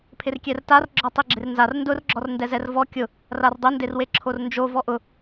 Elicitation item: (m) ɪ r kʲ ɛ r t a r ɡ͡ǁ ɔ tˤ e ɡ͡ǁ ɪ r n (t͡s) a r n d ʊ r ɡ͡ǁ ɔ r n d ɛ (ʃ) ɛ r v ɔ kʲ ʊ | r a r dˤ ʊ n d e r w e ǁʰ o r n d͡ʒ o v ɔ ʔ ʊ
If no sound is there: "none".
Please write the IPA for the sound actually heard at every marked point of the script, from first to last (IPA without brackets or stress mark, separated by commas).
pʰ, z, z